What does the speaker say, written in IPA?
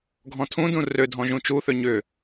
ɡʱɔ̃tʰũdũ rødʱɔ̃ ʒũt͡ʃuθø ɲʏ

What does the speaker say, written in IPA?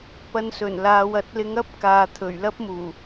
pɐ˧nsɵ˨˩nlaː˨˧w ɐ˨˥t̚lɪ˧ŋɐ˥p̚kaː˨ t̪ʰɵ˨˩ɥlɐ˥p̚muː˨˩

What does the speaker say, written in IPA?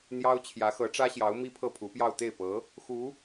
n̪jɑ˥ʊ̯ t͡ɕʰjä˧˥xɤ˧˥ʈ͡ʂä˥ɕjɑ˧˥ʊ̯ mi˥pʰɤ˥˩pʰu˧˥pjɑ˥˧ʊ̯ t̪e˥˩ɪ̯pɤ˧˥ | xu˧˥

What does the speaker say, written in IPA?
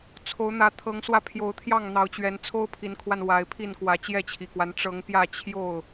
t͡sʰo˨˦ʊ̯n̪ä˨˦ t̪ʰɤ˨˦ŋswä˧pʰjo˨˦ʊ̯ t̪ʰjɑ˥˨ŋn̪ɑ˨˦ʊ̯t͡ɕɥɛ˨˦n t͡sʰo˦ʊ̯pʰi˨˦nkʰwa˧n wa˨˦ɪ̯pʰi˥˨n kwä˨˦t͡ɕjɛ˥˨t͡ɕʰi˨˩kwa˦n ʈ͡ʂɤ˨˦ŋpjä˥˨ t͡ɕʰjo˥˨ʊ̯

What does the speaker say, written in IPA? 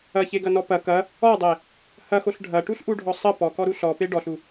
ɐçeɡɐnɔ pɐ kɐ | ɔdˤe | hɐxoɬ ɖʱɐʈuɬʔuɖʱɔ sˤə pɔkɔɾu ɬɔpe ɖɔɬu

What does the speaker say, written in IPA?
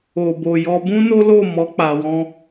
o˨ bo˨jɔ˧ bũ˦no˦lo˦˨mɔ˨˦ k͡pa˧wɔ̃˦

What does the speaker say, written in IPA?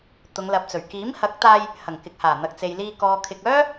t̪ʊ˨˧ŋlɐ˨p̚t͡sɵ˨˩ɥ kiː˨˥mhɐ˨˥k̚t̪aː˧j | hɐ˨˩ŋkɪ˨k̚haː˨˩ n̪ɐ˨k̚t͡se˨jliː˧ kɔː˨kʰɪ˨k̚œː˥

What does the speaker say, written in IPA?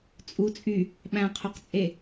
t͡sʼu t͡sʼy | ɓæ̃qʰoqt͡sʼe

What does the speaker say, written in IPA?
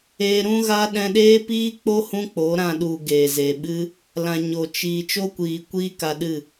eː˧ɾũ˦ ɣa˦ ɗɛ̃˧ɗeː˦ piː˦k͡po˦ hũ˦k͡po˨˦ɾã˧ ɗu˨ ɡeː˨zeː˨ɓɨ˦ | lã˨ ɲo˨ t͡ʃiː˨ t͡ʃo˦kʷiː˨kʷiː˦ ka˧ɗɨ˦˨

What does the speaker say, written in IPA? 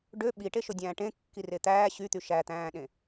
ɖø ɓiʈeʃodʲæ̃ː ʈẽkːire t̪æː ɕyt̪y ʃæt̪æ̃ːɗẽ

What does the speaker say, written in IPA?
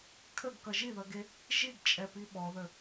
kʰəɡkʌ ʒiðʌɡe | ʒiɡt͡ʃʼɛpi ɓɔðə

